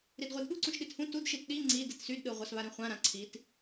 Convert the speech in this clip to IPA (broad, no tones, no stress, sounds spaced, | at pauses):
ɾ i d ʁʷ i d ɠ u ǀ ũ ʃ ɗ i t h ũ t u d ʃ i t ɗ i ŋ͡ǀ i d i t s y d ɗ ɯ ʁʷ a s β a ɾ ĩ χʷ ã ɾ ã ǀʰ i t